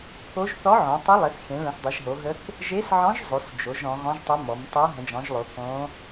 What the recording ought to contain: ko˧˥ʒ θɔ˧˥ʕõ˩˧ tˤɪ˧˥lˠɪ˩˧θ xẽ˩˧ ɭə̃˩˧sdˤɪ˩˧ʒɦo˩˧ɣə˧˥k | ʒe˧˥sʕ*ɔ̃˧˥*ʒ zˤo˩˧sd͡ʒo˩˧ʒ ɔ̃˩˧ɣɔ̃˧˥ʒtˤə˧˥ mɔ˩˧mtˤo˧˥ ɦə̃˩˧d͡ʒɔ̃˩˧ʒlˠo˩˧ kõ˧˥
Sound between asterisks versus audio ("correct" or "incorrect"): correct